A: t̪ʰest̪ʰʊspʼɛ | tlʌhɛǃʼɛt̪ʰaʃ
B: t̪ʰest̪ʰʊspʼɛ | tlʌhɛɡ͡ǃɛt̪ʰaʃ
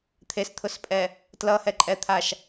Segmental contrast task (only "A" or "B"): A